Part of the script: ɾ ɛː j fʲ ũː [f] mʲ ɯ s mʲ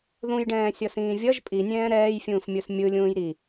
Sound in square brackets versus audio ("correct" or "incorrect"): correct